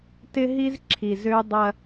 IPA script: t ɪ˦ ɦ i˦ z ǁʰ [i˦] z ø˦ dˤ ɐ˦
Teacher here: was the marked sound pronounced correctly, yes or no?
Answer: no